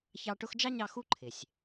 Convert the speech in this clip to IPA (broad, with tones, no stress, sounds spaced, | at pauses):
ç ɑ˦ ʈ ʊ˦ x d͡ʒ ɑ˥ ɲ ɑ˦ x u˥ ǃʰ ɪ˩ sʲ